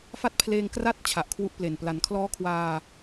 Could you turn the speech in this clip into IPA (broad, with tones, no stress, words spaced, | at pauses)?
fa˦˥t̚pʰleː˧ŋkra˦˥t̚ t͡ɕʰa˨˩ʔkʰwu˥˩ʔple˨˩n pla˩˦nkʰlɔː˦˥kʰwaː˧